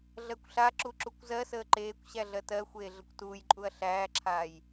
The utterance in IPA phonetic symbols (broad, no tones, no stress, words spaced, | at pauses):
ɮɜkʷɬaǁu ǁukʷzɜsəː ǃeːkʷ ɕæɮɜtɜxʷeː ɮəkʷtuːjǃʼuɐ̯ ɬæːǁʰaːj